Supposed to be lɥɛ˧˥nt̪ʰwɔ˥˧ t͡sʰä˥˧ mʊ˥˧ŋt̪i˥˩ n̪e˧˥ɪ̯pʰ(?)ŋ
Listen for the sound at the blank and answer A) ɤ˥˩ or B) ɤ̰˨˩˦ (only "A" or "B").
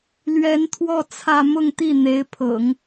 B